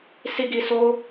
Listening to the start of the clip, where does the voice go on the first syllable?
high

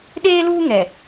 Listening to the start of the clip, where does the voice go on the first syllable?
high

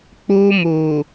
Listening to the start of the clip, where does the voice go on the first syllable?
high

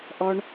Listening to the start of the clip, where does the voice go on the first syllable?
high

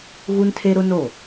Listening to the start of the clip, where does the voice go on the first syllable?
high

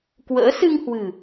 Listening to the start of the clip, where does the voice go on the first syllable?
rising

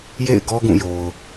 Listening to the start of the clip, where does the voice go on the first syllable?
falling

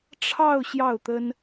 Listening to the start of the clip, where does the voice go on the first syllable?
falling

